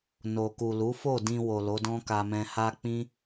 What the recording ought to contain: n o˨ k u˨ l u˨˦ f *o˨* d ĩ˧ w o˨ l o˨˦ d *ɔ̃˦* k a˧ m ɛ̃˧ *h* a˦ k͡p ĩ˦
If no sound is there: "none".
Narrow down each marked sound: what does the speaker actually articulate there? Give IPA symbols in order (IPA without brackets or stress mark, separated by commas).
o˦˨, ɔ̃˦, h